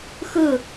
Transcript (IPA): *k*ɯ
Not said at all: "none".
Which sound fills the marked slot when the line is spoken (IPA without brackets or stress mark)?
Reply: x